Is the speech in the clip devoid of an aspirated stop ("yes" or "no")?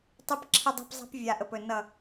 no